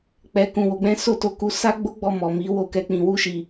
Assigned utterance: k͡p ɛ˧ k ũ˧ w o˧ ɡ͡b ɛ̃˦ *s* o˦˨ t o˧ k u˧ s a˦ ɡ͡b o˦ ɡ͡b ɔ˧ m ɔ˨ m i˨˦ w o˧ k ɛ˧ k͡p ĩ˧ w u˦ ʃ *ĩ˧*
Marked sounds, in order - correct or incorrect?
correct, incorrect: i˧

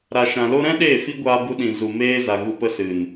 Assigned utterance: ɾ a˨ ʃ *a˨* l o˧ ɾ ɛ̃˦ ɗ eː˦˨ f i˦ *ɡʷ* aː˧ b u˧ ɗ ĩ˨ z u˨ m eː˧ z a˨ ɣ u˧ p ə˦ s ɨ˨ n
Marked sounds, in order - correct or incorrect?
incorrect: ã˨, correct

